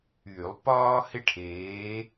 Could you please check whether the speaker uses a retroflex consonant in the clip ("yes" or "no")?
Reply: yes